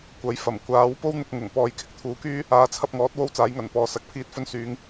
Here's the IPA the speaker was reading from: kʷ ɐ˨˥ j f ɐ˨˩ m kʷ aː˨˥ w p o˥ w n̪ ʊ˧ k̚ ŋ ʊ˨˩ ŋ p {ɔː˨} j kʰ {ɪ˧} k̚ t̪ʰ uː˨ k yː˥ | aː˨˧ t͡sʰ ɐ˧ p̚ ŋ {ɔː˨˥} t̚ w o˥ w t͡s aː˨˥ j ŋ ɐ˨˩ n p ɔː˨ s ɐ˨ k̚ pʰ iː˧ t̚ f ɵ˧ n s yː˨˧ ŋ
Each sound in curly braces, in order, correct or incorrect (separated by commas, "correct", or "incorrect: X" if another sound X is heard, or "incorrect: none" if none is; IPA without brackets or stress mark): correct, correct, correct